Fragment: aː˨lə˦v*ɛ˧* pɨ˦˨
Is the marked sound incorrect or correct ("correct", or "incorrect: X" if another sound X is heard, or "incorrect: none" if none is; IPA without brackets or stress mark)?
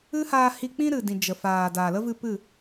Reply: incorrect: ɨ˧